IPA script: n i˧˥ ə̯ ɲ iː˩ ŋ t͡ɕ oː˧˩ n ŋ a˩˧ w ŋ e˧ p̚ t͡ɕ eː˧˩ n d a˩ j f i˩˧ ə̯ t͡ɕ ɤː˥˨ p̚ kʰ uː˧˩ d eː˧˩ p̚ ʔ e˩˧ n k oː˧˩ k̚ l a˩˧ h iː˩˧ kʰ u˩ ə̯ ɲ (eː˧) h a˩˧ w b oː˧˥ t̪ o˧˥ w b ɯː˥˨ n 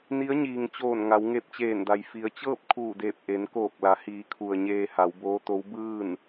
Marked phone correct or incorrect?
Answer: correct